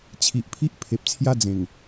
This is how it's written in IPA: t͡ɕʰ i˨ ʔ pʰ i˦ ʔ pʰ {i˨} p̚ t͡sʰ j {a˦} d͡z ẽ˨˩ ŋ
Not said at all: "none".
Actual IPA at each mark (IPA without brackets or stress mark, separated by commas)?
e˨, a˦